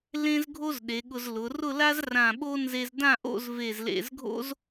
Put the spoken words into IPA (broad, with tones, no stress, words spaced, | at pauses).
lẽ˥zɡʱo˥z ɗe˩˧ɠʊ˧zlʊ˩˧ rʊ˥˧la˥z rã˧˩ɓo˥ nze˧zdã˥˧ʔo̰˥˧z ve˧˩zlḛ˧˩zɡʱo̰˥z